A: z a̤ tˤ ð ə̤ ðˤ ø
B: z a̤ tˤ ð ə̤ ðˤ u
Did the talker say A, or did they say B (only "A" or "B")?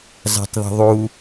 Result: B